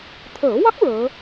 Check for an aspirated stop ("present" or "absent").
present